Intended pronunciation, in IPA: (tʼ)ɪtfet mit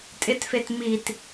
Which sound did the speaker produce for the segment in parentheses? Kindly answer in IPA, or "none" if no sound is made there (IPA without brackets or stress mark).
tʼ